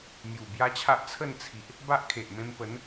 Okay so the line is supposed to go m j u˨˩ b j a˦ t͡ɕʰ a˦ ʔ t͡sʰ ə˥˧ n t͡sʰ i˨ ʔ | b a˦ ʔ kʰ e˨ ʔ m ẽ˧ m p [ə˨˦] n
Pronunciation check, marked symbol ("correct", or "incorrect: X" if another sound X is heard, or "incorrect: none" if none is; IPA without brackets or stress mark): correct